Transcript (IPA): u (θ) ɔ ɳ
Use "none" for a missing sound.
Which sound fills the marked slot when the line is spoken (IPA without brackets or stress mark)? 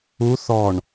θ